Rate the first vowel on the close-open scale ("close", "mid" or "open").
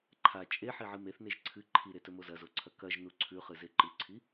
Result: open